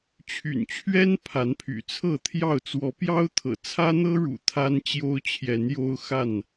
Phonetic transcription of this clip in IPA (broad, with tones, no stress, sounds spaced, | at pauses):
t͡ɕʰ y̰˨˩ n t͡ɕʰ ɥ ɛ˦ n pʰ a˨˦ n pʰ y̰˨˩ t͡sʰ ɤ˥˨ t̪ʰ j ɑ˥˨ ʊ̯ t͡s w ɔ˨˦ p j ɑ˦ ʊ̯ t̪ʰ ɤ̰˨˩ t͡sʰ ä˦ n̪ ɤ˦ ɻ ṵ˨˩ t̪ʰ a˦ n t͡ɕ j o˦ ʊ̯ t͡ɕʰ j ɛ˨˦ n j o˦ ʊ̯ x a˥˨ n